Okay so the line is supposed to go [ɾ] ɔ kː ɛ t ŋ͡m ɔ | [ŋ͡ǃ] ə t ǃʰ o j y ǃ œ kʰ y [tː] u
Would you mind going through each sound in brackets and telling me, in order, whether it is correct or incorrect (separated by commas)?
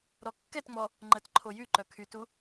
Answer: correct, correct, incorrect